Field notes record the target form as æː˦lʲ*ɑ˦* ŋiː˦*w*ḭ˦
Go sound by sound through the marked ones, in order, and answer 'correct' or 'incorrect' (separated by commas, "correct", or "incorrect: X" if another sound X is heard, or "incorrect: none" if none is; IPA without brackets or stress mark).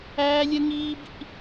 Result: incorrect: ə˦, incorrect: b